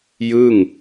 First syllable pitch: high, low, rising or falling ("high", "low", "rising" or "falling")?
falling